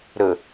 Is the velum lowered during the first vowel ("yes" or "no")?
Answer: no